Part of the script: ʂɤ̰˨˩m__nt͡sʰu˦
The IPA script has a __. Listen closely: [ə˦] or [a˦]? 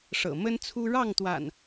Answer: ə˦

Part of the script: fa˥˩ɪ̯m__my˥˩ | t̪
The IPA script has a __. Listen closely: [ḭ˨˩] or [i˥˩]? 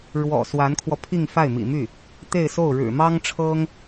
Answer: ḭ˨˩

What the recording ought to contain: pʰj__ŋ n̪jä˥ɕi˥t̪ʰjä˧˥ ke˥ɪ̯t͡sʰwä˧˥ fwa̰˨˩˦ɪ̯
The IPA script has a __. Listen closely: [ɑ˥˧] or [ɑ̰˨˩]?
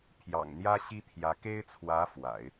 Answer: ɑ̰˨˩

